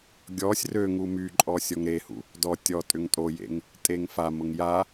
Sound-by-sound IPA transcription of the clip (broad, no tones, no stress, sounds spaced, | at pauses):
ɡʲ ɔ sʲ r ø ŋ u m y ǃʼ ɔ sʲ ɔ ŋ ɾ e h ṵ | d ɔ tʲ ɔ tʼ ʏ ŋ tʼ o j ḛ ŋ | tʼ e ŋ f a m ʊ ŋ j a